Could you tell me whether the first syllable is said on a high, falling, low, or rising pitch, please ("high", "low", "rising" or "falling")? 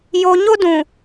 high